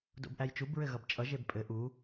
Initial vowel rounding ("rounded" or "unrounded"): rounded